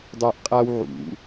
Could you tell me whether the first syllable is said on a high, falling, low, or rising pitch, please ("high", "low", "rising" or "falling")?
high